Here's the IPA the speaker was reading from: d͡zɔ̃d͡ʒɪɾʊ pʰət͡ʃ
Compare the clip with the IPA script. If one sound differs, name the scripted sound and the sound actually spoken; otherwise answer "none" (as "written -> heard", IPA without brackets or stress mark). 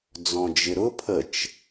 none